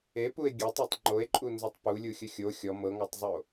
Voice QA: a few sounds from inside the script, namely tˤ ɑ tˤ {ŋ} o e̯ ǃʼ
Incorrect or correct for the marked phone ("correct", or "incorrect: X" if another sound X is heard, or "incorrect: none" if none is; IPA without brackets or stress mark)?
incorrect: ŋ͡ǃ